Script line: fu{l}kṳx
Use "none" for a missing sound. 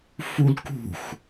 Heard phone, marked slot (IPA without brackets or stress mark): l